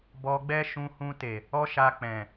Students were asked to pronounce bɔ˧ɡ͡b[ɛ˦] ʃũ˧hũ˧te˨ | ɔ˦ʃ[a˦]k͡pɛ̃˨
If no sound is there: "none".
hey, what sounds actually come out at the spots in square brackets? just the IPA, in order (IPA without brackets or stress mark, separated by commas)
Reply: ɛ˦, a˧